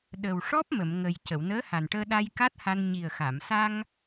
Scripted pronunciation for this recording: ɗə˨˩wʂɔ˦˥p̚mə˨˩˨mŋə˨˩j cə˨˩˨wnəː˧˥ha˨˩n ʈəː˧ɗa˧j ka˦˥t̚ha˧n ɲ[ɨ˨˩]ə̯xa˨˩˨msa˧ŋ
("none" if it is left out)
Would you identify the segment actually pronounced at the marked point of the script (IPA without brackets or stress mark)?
i˨˩